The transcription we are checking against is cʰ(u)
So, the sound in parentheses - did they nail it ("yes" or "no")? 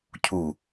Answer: yes